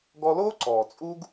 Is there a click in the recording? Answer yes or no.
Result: yes